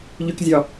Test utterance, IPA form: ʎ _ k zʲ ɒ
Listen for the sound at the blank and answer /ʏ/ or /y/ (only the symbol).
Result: y